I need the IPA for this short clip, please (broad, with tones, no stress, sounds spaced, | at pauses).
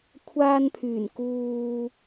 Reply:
kʷʰ aː˧ n pʰ yː˨˩ n k uː˧